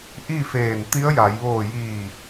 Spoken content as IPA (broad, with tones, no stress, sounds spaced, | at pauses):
ʔ i˥˨ f eː˧˩ n t̪ i˧˥ ə̯ j a˩˧ j ʋ oː˧˩ j iː˧˩